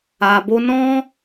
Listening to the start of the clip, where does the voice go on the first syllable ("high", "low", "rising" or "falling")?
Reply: low